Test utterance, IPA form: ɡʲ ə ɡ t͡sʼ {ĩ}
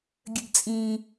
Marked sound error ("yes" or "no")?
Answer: no